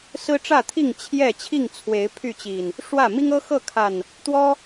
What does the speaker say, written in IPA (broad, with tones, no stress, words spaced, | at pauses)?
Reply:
sɹ̩˦ʈ͡ʂä˥˨t̪ʰi˥˨ŋ t͡ɕʰjɛ˥˨ t͡ɕʰi˥˨ŋt͡sʰwe˨˦ɪ̯ pʰy˥˨t͡ɕi˨˩n | ʂwä˥˨ mi˦ŋɤ˦xɤ˥˨kʰa˨˩n | t̪wɔ˦